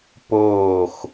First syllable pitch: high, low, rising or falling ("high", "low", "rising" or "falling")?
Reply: falling